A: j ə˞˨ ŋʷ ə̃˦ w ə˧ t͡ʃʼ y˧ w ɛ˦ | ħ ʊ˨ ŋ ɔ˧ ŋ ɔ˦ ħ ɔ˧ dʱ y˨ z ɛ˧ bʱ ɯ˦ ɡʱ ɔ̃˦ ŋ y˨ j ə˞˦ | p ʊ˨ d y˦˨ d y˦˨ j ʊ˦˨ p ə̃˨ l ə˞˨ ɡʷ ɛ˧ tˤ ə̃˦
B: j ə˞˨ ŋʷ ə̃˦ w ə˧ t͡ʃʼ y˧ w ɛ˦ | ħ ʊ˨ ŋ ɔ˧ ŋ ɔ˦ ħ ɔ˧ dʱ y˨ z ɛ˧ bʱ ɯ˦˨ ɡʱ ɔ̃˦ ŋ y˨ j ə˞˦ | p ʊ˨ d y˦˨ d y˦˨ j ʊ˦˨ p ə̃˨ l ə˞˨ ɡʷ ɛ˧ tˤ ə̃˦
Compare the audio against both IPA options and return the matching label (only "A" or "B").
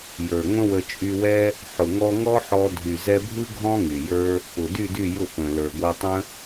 A